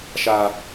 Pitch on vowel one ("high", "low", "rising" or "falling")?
high